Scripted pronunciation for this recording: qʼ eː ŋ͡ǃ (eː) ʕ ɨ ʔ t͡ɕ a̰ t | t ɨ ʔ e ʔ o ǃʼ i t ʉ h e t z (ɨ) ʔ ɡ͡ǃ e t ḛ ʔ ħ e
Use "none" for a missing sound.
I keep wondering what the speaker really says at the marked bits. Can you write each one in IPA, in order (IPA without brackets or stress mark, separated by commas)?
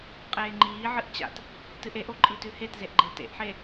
iː, e